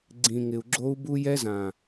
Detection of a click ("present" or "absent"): present